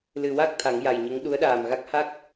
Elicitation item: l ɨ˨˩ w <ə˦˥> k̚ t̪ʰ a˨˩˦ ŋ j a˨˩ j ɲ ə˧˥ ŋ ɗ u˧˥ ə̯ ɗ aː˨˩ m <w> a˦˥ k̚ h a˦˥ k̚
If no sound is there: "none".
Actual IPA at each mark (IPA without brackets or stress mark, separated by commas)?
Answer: a˦˥, ɣ